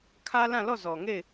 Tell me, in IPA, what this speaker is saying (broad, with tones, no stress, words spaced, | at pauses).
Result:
kʰä˦lã˦˨lɔ˦˨zɔ˨ ŋe˦˨ɪ̯